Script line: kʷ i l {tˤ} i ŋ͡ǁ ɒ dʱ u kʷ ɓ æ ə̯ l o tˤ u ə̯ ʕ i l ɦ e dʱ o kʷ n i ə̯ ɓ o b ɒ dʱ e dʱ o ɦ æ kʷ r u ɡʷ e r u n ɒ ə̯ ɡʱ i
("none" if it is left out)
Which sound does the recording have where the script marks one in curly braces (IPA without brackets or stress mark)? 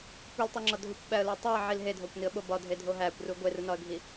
tˤ